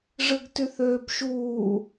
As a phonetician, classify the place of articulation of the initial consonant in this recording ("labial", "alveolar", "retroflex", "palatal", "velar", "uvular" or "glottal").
retroflex